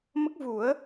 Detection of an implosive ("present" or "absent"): absent